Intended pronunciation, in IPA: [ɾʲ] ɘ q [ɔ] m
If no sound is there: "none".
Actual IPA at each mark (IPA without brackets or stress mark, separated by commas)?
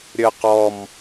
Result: ɾʲ, ɔ